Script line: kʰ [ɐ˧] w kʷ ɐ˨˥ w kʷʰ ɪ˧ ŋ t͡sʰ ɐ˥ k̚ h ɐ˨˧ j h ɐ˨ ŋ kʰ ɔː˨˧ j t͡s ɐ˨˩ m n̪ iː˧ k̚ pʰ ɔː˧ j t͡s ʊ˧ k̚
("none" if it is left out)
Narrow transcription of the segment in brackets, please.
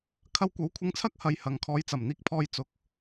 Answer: ɐ˧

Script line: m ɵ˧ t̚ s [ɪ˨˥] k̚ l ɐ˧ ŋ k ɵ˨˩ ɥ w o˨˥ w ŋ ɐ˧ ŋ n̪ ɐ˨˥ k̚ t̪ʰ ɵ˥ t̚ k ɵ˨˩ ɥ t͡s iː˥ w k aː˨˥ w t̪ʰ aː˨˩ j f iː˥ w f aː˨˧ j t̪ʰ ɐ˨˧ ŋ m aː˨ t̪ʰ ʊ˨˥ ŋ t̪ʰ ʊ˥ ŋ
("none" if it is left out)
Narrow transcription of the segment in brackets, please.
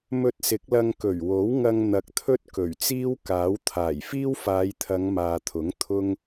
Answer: ɪ˨˥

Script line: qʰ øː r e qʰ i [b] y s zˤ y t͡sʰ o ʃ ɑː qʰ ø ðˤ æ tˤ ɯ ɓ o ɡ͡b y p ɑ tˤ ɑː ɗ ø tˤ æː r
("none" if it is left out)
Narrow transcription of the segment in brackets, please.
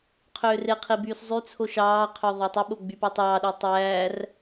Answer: b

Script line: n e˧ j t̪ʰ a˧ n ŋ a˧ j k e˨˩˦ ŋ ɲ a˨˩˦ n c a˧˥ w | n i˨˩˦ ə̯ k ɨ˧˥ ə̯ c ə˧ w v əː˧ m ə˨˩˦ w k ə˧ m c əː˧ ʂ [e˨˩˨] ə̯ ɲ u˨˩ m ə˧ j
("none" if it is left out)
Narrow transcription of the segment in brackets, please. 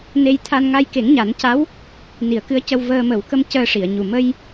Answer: i˨˩˨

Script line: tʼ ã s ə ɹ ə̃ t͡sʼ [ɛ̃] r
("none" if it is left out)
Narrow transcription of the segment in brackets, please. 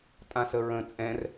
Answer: ɛ̃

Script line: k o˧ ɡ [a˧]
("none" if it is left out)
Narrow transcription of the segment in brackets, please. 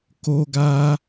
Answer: a˧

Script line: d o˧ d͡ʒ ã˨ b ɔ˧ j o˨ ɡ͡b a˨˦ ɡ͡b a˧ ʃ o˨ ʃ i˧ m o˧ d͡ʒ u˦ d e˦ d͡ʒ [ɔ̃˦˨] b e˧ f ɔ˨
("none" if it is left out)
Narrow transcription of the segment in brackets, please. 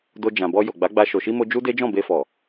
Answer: ɔ̃˦˨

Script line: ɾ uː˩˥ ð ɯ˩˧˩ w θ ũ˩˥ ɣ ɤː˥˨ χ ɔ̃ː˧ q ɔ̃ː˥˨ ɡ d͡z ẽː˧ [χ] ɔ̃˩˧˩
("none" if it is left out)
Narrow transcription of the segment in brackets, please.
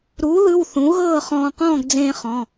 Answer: χ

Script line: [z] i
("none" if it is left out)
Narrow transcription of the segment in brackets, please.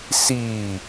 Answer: s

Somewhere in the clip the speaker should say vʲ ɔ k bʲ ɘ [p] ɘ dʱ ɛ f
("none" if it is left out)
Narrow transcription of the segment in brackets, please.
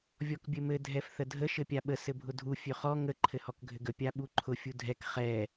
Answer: m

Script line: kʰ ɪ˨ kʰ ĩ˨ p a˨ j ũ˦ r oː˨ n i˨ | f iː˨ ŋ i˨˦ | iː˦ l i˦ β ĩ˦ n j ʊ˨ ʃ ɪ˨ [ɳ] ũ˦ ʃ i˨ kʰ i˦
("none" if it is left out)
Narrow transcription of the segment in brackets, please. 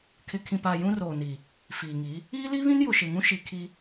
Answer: ŋ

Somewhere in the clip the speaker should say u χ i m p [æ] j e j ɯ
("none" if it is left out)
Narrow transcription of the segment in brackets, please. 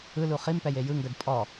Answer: ɛ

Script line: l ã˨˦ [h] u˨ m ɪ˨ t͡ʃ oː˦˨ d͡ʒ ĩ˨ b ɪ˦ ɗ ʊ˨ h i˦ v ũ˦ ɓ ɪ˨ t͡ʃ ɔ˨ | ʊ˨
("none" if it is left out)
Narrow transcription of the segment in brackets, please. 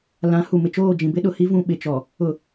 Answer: h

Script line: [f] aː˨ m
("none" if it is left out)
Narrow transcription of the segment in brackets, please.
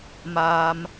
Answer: m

